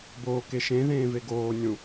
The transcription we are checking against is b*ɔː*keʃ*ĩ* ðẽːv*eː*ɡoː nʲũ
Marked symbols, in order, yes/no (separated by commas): no, no, no